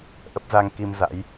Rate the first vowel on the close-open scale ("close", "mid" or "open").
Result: mid